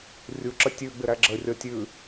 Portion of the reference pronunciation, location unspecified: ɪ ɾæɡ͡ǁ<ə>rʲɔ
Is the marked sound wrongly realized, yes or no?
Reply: no